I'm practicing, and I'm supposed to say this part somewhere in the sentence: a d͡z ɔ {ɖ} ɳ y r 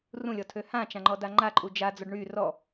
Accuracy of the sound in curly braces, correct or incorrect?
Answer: correct